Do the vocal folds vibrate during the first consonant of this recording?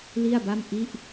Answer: yes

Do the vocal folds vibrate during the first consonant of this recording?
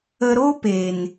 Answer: yes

